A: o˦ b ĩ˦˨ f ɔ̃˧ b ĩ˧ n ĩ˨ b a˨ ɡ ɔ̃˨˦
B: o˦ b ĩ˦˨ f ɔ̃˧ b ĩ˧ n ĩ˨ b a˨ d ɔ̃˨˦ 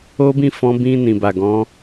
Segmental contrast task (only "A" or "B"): A